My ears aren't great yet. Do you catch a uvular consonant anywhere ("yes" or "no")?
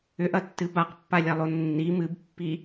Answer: yes